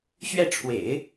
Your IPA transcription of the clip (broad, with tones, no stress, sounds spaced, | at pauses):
ɕ ɥ ɛ˥˩ ʈ͡ʂʰ w ḛ˨˩˦ ɪ̯